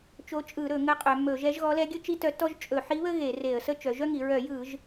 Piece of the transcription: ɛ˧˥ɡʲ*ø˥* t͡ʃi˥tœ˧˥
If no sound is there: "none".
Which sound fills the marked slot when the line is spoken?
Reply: ɵ˥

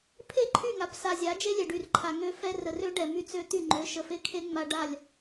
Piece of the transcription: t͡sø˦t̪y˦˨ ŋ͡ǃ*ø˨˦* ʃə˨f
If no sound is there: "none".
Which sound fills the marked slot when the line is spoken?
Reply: ø˨˦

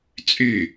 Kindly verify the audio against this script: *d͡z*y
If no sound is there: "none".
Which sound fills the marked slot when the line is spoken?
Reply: t͡sʼ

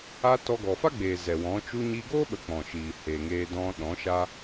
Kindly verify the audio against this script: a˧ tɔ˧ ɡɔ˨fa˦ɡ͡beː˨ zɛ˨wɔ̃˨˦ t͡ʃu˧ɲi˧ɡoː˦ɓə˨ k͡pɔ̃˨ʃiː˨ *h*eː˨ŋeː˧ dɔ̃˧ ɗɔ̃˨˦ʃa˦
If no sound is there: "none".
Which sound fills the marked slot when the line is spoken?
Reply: h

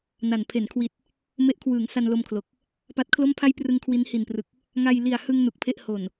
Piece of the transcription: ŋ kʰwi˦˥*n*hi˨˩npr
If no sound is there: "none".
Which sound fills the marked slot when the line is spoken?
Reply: n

